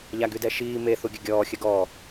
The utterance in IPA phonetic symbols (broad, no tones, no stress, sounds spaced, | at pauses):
ʎ a ɡ y d ɛ ʃ iː m e θ u ɡʲ ə ɡʲ ɔː xʲ ə ɡ ɔ